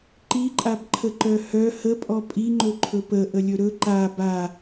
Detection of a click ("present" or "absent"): present